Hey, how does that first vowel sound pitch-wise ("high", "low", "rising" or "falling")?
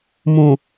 low